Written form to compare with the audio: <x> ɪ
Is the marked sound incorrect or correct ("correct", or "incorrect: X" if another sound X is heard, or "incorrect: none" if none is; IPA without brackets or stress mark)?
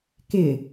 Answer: incorrect: k